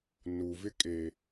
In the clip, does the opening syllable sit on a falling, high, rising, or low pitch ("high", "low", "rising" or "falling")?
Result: low